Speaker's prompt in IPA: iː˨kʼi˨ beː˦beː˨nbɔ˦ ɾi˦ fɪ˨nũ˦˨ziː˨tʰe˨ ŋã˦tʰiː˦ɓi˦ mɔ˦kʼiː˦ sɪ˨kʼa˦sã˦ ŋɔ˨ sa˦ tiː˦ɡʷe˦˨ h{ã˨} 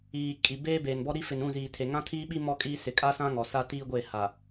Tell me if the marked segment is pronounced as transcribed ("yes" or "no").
no